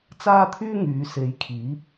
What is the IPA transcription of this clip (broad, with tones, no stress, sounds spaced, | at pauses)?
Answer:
t͡s aː˥ t̪ʰ yː˥ ŋ yː˨˧ s e˨˧ j kʰ iː˨˥ p̚